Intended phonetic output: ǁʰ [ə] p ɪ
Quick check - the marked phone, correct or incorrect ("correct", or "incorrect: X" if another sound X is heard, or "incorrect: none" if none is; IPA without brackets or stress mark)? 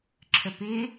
correct